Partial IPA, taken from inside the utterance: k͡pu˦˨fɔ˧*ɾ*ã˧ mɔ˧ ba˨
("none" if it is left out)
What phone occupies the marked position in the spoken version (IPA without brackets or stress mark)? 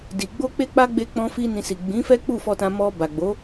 t